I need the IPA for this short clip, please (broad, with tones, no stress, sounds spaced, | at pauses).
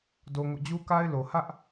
d o˦ ŋ o̰˦˨ d͡ʑ u˦ k a˦ ɪ̯ l o˨ h ä˦ ʔ